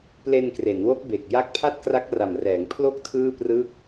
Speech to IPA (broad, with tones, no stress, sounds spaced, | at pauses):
p l e˧ n k r e˩˦ n w o˦˥ k̚ b e˨˩ k̚ j a˦˥ k̚ pʰ a˥˩ t̚ k r a˦˥ k̚ r a˨˩ m r ɛː˩˦ ŋ pʰ l o˥˩ k̚ tʰ ɯː˥˩ p r ɯ˥˩ k̚